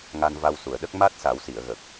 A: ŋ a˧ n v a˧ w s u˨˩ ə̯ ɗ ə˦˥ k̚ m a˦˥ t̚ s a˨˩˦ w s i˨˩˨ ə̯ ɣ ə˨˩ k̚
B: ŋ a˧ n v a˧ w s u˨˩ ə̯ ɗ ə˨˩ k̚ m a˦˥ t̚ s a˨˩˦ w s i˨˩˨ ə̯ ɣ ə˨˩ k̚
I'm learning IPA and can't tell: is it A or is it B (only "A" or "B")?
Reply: A